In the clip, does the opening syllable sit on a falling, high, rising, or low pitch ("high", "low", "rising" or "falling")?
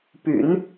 low